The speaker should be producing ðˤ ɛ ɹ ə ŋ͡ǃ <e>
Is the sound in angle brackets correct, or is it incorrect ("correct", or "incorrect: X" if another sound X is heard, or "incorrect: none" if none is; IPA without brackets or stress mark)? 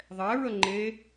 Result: correct